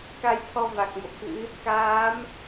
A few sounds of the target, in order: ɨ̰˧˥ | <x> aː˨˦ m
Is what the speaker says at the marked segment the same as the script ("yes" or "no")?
no